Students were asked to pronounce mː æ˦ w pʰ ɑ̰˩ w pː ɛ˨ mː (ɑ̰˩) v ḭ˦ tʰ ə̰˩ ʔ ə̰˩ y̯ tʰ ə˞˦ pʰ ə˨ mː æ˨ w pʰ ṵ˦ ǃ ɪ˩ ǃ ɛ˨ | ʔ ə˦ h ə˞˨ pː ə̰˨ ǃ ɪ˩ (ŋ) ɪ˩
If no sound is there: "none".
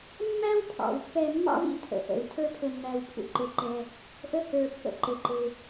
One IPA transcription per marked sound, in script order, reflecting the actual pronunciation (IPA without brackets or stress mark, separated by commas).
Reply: ɑ̰˥, ǃ